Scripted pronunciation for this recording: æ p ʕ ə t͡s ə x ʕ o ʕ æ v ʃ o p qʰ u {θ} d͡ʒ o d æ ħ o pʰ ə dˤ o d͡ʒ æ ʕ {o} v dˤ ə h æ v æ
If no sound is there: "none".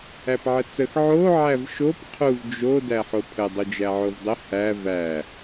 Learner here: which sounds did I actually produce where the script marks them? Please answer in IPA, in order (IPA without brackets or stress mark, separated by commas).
v, o